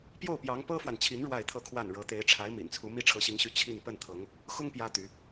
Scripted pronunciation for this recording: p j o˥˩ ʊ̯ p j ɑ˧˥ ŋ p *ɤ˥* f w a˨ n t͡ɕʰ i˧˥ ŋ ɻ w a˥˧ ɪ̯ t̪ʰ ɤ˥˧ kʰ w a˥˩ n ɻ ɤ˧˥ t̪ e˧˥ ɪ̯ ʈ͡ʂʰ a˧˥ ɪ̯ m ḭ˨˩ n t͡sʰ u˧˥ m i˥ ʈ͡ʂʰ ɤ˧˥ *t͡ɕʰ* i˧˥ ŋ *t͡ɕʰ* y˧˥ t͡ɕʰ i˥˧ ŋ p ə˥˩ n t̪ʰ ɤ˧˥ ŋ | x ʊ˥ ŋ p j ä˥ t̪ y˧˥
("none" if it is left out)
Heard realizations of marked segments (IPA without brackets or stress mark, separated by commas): ɤ˥, ɕ, ɕ